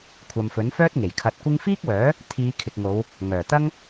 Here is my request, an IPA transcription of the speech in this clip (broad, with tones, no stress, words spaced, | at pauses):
kʷʰɐ˨mfɵ˨˥nfœː˥t̚ ŋe˨˩jkʰɐ˧t̚kʷɪ˥ŋ fiː˥k̚wœː˨˥ | t̪ʰiː˨˧kʰɪ˨k̚ŋo˨˧w | ŋœː˨˩t̪ɐ˥ŋ